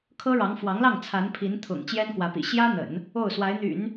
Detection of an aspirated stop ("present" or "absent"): present